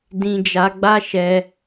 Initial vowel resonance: nasal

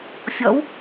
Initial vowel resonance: oral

